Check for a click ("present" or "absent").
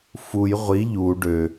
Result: absent